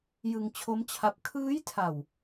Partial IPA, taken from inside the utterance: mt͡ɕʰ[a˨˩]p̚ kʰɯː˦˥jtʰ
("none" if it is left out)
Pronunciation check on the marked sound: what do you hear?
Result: a˦˥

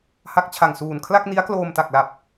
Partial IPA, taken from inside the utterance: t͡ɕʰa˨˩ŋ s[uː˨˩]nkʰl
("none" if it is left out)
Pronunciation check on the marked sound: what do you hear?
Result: uː˨˩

